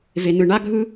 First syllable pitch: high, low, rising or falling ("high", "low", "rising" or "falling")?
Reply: low